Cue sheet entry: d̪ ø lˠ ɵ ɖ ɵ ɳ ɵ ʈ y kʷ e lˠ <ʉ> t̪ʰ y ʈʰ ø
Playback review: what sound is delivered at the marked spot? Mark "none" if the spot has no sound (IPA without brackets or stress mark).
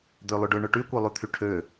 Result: ʉ